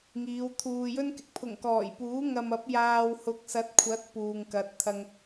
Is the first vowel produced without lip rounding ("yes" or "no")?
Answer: yes